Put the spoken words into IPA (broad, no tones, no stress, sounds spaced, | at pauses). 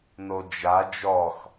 n o d͡ʒ a d͡ʒ ɔ x